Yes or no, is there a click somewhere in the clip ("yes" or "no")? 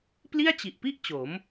no